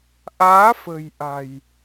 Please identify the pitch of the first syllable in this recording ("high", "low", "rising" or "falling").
rising